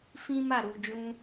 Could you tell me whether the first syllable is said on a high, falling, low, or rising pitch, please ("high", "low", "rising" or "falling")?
high